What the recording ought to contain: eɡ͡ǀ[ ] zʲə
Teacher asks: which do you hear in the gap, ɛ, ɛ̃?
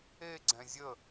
ɛ̃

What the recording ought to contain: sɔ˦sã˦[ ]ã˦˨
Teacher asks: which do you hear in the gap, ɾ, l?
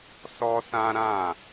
ɾ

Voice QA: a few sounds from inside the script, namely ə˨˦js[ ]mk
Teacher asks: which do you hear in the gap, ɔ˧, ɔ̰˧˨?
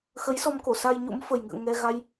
ɔ˧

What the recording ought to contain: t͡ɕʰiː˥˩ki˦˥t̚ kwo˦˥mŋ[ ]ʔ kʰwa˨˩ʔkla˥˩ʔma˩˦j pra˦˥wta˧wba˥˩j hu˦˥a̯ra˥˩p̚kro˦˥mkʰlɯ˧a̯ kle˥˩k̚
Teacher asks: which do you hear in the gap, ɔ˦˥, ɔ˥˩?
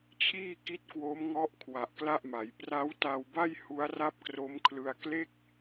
ɔ˦˥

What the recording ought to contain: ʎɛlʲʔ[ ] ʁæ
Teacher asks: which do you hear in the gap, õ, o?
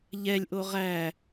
o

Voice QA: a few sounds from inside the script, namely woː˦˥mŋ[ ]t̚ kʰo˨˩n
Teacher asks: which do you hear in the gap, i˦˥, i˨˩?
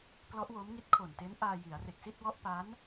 i˦˥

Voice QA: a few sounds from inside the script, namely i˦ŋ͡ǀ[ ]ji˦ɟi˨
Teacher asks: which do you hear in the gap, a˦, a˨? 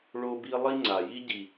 a˨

